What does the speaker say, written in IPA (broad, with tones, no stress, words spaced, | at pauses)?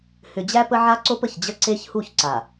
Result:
hʏ˨d͡ʑæ˦pə˦ʕa˦ ǀo˦pə˨çd͡ʑə˦ ǀe˦çhu˦˨çǀa˨